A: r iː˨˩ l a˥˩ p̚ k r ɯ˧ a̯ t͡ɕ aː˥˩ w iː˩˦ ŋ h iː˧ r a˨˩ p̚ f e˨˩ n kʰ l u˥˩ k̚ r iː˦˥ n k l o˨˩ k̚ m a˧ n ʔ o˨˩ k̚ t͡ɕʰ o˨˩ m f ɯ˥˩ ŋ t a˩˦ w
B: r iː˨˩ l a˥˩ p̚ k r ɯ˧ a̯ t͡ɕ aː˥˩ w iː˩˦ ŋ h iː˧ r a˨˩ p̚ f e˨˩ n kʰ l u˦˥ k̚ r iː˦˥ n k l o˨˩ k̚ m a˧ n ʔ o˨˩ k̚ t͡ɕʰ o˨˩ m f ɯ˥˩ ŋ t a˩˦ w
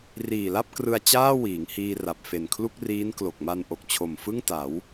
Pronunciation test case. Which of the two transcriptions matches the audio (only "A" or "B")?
A